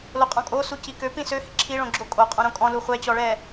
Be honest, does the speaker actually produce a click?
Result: yes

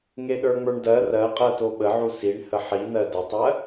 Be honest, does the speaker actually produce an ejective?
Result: yes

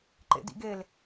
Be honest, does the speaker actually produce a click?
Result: yes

